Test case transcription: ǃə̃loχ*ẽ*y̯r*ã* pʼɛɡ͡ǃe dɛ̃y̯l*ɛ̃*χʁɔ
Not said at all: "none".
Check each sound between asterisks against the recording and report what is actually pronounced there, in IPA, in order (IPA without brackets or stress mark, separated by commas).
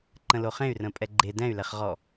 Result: ẽ, ə̃, ɛ